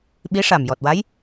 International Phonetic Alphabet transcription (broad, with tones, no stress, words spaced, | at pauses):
ɓi˧˥ʂa˨˩mjɔ˨˩t̚wa˧˥j